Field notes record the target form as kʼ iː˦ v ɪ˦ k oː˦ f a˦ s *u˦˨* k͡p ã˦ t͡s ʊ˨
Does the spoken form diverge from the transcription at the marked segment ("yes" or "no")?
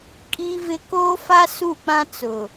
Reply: no